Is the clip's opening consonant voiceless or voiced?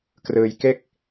voiceless